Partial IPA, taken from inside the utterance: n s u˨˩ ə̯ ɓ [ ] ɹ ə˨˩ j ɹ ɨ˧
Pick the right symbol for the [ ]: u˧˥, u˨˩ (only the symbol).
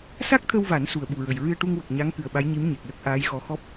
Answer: u˨˩